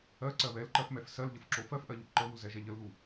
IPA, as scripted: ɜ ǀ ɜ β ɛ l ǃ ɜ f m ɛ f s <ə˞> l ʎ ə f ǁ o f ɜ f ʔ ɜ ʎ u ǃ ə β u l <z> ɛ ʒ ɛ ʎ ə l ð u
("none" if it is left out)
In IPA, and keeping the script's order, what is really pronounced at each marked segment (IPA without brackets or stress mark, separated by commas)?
ɜ, z